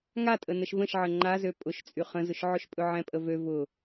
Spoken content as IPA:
ŋ a tʼ ə n ə ʃ v ə̃ ʃ ʕ ə ŋ͡ǃ a z ø pʼ ʊ ʃ t͡sʼ y χ ə̃ z ʊ ʃ ʕ ʊ ʃ pʼ ɵ ʕ ɛ̃ pʼ ə v ø v ʊ

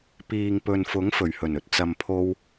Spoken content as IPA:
p iː˨ ŋ p ɵ˨ n f ʊ˨˥ ŋ f ɵ˨˩ ɥ h ɵ˨˩ n ɵ˨ t̚ t͡s ɐ˨ m pʰ o˧ w

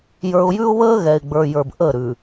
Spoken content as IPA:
j ə˞˨ ʊ̯ j ʉ˦ ʊ̯ β əː˦ ɣ ɛ˨ ɪ̯ ɡ͡b ə˞˨ j ə˞˨ b ʔ ə˦˨ ɾ ʉ˨

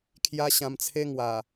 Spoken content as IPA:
kʰ j a˦ ɕ ã˧ m t͡sʰ e˦ ŋ w a˨˩

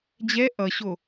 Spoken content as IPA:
d͡ʑ ɛ ʔ ʌ ɕ o

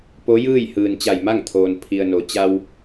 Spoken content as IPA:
p o˧˥ j ɯː˥˨ j h ɯː˩ n t͡ɕ a˧˩ j m a˥˨ ŋ t̪ʰ oː˩ n pʰ i˩ ə̯ n o˩ t͡ɕ a˧ w

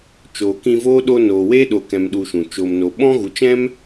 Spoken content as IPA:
t͡ʃ oː˨ k ĩ˧ v oː˦ ɗ o˧ n oː˨ w e˦ ɗ o˨ k ɛ̃˨ m ɗ u˧ ʃ ũ˨ t͡ʃ o˨ m n o˨ ɓ ɔ̃˦ ɣ u˨ t͡ʃ ɛ̃˦ m

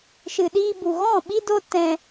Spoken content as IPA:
ʃ ɨ˨ ɗ iː˧ b u˨ ɣ ɔ̃˦˨ ɓ i˦ d o˦ t ɛ̃˧

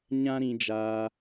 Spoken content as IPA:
ɲ ã˦ ɾ ĩ˧ d͡ʒ aː˧

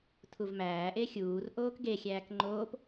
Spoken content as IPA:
tʰ u v m æː ʔ e xʲ uː r ʔ oː k ɡ e xʲ æː k ŋ͡ǃ oː p

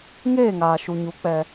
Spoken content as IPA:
ŋ eː˦˨ ŋ aː˨ ʃ u˨ ɲ u˨˦ k͡p ɛ˧

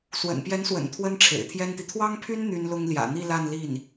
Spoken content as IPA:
s w ə̰˨˩ n p j ɛ˧˥ n s w ə̰˨˩ n t̪ʰ w ə˥ n ʈ͡ʂʰ ḛ˨˩ ɪ̯ t̪ʰ j ɛ˥ n t̪ i˨ t̪ʰ w ɑ˥ ŋ pʰ y˥ n n̪ y˥ n l ʊ˥ ŋ l j ä̰˨˩ n̪ i˥˧ l a˥˧ n l i˥˩ n

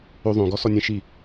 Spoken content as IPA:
o ðˤ õ ɡ ɔ s ɔ nʲ ẽ ʃ i

